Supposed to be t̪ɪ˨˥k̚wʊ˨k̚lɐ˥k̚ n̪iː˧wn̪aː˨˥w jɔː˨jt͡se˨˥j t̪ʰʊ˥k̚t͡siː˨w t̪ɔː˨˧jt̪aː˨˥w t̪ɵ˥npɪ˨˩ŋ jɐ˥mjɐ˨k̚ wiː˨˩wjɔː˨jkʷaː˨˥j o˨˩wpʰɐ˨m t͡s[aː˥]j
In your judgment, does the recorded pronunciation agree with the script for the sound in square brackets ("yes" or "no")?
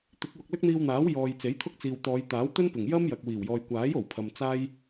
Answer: yes